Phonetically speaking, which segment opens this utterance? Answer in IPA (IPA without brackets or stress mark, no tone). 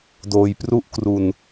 d